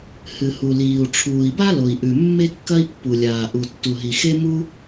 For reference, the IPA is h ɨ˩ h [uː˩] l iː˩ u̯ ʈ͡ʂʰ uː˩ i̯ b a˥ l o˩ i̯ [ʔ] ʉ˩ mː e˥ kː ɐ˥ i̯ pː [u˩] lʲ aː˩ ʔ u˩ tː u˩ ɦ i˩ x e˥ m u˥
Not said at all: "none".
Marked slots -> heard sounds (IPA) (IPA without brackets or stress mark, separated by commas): u˩, ʔ, u˩